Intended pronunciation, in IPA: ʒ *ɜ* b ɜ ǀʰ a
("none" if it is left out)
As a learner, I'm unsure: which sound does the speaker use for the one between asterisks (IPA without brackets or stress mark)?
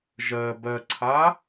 ɜ